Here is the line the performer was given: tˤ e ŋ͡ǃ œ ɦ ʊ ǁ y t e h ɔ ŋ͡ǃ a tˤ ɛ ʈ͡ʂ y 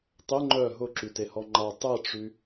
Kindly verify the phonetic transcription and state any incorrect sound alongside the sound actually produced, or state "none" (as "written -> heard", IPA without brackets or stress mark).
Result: none